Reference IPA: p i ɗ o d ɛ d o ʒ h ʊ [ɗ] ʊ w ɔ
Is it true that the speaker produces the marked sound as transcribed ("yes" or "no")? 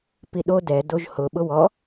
no